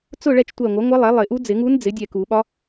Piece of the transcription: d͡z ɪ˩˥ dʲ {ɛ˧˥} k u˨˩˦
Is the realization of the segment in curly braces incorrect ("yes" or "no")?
yes